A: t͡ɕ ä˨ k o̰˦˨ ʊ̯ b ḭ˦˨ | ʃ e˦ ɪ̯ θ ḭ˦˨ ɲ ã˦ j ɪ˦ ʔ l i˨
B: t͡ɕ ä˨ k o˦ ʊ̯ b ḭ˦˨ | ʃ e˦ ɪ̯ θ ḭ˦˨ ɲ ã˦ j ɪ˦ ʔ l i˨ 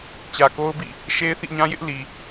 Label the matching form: B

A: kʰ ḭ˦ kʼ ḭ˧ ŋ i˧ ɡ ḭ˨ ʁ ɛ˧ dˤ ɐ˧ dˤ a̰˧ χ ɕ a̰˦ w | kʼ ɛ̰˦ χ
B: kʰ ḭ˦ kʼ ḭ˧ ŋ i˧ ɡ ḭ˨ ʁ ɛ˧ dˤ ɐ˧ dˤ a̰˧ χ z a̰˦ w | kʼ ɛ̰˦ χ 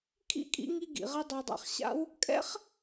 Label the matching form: A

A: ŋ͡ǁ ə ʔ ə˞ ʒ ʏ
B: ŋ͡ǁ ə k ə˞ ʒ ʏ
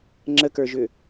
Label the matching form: B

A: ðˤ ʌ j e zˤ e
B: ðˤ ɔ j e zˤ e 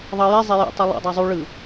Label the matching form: A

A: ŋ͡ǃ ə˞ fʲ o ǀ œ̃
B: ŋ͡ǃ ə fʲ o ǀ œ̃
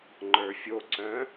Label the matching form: A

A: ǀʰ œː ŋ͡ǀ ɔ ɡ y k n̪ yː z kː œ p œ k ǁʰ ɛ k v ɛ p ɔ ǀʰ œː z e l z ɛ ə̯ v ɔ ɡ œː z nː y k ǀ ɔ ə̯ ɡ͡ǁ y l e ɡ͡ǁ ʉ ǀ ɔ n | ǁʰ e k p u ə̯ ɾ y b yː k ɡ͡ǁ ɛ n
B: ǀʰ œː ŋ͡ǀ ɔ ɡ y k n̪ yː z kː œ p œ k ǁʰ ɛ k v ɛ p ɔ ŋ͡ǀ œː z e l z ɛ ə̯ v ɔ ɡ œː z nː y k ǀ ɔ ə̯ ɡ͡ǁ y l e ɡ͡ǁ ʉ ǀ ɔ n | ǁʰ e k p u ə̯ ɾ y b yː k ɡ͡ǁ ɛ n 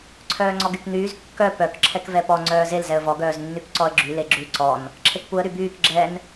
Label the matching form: B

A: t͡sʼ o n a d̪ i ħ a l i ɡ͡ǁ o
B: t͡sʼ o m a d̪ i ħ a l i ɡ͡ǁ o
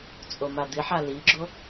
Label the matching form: B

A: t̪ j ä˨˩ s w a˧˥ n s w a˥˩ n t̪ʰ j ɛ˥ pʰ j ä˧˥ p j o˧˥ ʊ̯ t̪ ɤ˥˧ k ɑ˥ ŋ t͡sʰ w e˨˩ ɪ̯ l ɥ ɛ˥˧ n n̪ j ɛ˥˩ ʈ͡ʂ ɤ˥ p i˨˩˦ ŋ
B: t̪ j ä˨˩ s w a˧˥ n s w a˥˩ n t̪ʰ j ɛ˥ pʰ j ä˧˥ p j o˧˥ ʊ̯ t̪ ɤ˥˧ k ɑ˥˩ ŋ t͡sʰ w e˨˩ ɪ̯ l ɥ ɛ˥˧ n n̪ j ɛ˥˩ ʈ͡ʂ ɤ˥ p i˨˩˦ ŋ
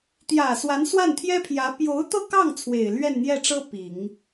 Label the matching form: B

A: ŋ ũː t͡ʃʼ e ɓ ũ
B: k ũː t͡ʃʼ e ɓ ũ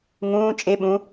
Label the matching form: A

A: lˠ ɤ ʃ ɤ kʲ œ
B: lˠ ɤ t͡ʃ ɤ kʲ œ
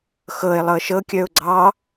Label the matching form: A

